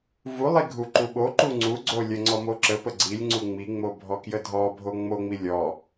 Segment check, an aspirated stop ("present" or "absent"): absent